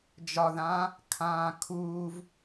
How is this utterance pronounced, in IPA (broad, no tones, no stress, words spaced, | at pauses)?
d͡ʒɒðãː | kʰãːkʰuːv